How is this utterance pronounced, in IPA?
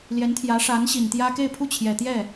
ljɛ˧˥nt̪ʰjä˧˥ʂa˧˥n ɕi˨˩nt̪jä˥ ke˥˧ɪ̯pʰu˥˩t͡ɕʰjɛ˨˩ t̪jɛ˥˩

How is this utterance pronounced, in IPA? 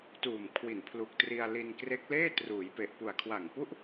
tuː˨˩m kʰwi˨˩npʰlu˨˩k̚tri˧a̯ li˧nkre˦˥k̚leː˥˩ truː˩˦jpe˨˩ʔpu˨˩a̯ kʰwa˨˩ŋpu˥˩ʔ

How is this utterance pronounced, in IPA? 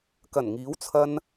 kɐ˨˩nŋiː˨˥w t͡sʰɐ˧n

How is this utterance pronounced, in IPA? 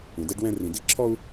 ũ˨dɛ˦ɖwɛ̃˦ rĩ˨di˦˨ǁʰɔ˦u̯

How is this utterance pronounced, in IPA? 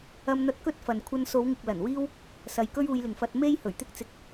ɐ˧mn̪ɐ˧t̚ kɵ˥t̚fɐ˨n kʷʰɐ˧nso˨˧wŋɪ˨k̚ lɐ˨˩nwiː˥w | sɐ˨˧jkɵ˥ɥuː˧jlɪ˨ŋ fɐ˧t̚me˥j hɵ˨˩ɥt̪ɪ˥k̚t͡sɪ˧k̚

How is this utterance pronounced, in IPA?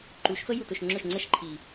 ǃu˨˦ʃfə˦ ju˨tʊ˨ʃŋ͡ǁʊ˦˨ʃŋ͡ǀə˦ʃ ǃʰi˨

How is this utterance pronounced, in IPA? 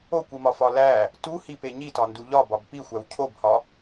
okʷimɒfɒ læ | tuhipe ɲitɒndu ʎɒbɒb pixʷæw cʰobhɒ

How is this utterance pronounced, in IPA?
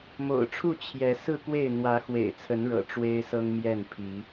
mo̰˨˩ʊ̯ʈ͡ʂʰu˥˨ t͡ɕʰjɛ˨˦ sɹ̩˥˨kwe˥˨ɪ̯ n̪wä˨˦xwḛ˨˩ɪ̯t͡sʰə˨˦nɻɤ̰˨˩ ʈ͡ʂwe˦ɪ̯sɤ˦ŋmjɛ˥˨n pʰi˨˦

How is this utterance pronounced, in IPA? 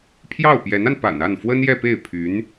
pʰjɑ˥˩ʊ̯pjɛ˧˥na˧npa̰˨˩n a˥˩nfwə˥njɛ˥˧pe˥˩ɪ̯ pʰy˧˥n

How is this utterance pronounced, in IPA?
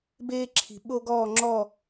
beː˥ǁʰi̤˧ ɓo˥ɡɔː˥˧ŋ͡ǁɔ˥˧

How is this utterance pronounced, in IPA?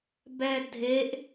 bɛdʱeʔ

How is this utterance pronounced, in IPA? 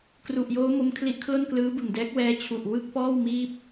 kru˨˩ʔjoː˦˥ mo˦˥mkʰli˦˥ʔ kʰlo˥˩nklɯː˦˥bɯ˨˩ŋdɛː˦˥k̚ wɛː˦˥t͡ɕʰu˨˩ʔwɯ˥˩k̚pɔː˥˩w miː˥˩p̚

